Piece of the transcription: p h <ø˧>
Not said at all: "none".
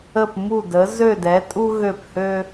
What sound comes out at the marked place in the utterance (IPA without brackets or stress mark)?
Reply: ø˧